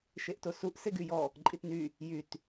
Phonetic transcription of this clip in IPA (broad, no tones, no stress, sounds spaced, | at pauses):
ʃ e ʔ t o s u ʔ s e ɡ y j ɔ | ǃʼ i t n y | j y t